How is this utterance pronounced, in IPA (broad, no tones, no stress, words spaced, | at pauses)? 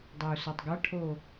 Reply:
dˤæu̯sɒtˤɡɒʈʰo